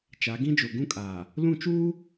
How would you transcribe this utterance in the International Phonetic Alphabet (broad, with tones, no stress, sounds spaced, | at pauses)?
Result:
t͡ʃ a˨˦ ɡ ĩ˦ d͡ʒ o˨ ɡ ũ˦ kʼ aː˨ | l ũ˦˨ t͡ʃ uː˦